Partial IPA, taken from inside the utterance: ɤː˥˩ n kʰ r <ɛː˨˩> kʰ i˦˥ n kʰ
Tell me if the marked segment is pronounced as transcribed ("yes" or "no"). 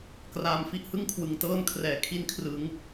yes